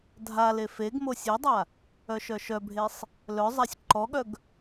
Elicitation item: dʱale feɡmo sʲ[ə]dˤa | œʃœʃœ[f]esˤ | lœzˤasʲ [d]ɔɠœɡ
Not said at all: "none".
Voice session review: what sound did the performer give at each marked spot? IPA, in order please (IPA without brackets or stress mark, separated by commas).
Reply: œ, bʱ, ǃ